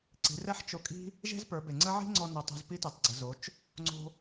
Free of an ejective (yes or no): no